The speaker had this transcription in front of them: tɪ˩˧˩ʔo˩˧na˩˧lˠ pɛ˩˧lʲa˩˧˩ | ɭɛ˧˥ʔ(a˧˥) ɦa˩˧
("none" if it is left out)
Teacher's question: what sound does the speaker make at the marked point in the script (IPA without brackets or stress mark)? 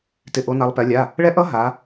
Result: ʌ˧˥